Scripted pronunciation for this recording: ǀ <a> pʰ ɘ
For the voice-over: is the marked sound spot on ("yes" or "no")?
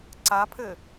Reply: yes